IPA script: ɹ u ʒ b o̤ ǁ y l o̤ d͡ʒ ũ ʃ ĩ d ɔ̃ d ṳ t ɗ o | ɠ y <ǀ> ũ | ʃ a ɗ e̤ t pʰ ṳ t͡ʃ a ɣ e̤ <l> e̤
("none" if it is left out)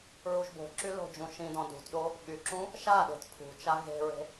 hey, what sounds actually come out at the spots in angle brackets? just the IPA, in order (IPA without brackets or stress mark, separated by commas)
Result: ǁ, ɹ